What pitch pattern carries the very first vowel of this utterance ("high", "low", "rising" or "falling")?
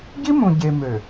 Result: high